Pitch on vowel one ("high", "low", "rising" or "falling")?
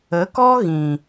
rising